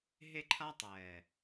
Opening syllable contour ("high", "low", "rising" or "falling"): high